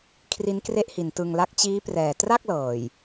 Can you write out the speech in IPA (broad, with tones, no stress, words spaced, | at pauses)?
kʰri˦˥nkre˥˩ʔhi˨˩n tɯ˧ŋla˥˩k̚ t͡ɕiː˦˥prɛː˨˩ tra˥˩k̚ lɤː˨˩j